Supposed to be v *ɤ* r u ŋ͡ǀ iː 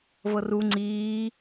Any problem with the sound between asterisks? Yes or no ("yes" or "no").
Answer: no